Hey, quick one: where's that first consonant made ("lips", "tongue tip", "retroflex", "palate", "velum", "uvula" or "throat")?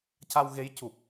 palate